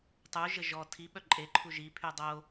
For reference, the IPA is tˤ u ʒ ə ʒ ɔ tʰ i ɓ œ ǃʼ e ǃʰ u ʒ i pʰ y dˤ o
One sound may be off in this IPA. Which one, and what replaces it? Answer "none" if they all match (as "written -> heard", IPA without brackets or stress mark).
none